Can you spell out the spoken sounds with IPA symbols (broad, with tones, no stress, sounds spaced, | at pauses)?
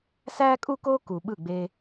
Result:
s æː˥ kʼ u˥ k oː˥ k u˩ ɓ ɯ˥˩ ɡ͡b e˧